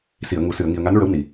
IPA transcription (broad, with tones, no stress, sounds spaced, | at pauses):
s i˨˩˨ ə̯ ŋ u˨˩˨ s ɨ˨˩˨ ə̯ ŋ i˨˩ ə̯ ŋ a˧˥ n ɹ ə˧˥ w n i˨˩